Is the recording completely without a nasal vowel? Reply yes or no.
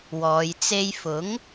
yes